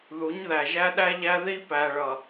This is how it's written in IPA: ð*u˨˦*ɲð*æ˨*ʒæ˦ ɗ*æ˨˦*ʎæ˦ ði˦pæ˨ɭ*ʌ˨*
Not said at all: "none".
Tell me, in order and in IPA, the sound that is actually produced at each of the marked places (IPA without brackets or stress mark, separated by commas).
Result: u˨˦, æ˨, æ˦, ʌ˨